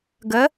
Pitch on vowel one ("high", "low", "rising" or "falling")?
rising